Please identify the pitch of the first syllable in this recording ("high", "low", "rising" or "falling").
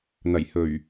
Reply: low